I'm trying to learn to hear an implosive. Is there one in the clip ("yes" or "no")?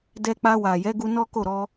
no